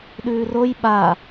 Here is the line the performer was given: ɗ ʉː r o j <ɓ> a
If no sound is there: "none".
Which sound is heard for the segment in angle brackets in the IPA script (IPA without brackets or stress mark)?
ɓ